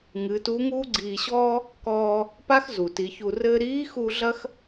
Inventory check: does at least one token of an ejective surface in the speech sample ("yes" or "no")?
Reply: no